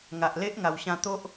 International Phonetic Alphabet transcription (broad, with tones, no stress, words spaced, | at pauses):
ŋa˨ʔle˦ʔ ŋa˨˩wɕã˧t̪o˦ʔ